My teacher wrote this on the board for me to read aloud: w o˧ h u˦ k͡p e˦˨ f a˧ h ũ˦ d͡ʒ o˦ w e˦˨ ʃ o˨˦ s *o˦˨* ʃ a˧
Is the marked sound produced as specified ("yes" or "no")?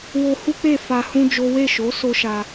no